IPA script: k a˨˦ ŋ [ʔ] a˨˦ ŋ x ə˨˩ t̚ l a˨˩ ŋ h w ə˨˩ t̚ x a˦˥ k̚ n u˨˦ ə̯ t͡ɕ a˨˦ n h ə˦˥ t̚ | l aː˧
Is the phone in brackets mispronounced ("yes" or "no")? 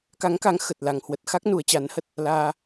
yes